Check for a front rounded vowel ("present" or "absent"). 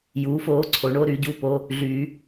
present